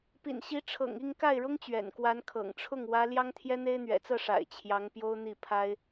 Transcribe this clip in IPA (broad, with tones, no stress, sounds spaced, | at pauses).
p ḭ˨˩ n ɕ i˧˥ ʈ͡ʂʰ ɤ̰˨˩ ŋ i˥˧ ŋ k a˥˩ ɪ̯ ɻ ʊ˥ ŋ t͡ɕ ɥ ɛ̰˨˩ n k w a˧˥ n kʰ ɤ̰˨˩ ŋ ʈ͡ʂʰ ʊ˥˩ ŋ w ä˥ l j ɑ˥ ŋ t̪ʰ j ɛ˥ n̪ e˥ ɪ̯ n̪ ɥ ɛ̰˨˩ t͡s ɤ˥˩ ʂ a̰˨˩ ɪ̯ t͡ɕʰ j ɑ˧˥ ŋ p j o˥ ʊ̯ n̪ i˥˩ pʰ a˥ ɪ̯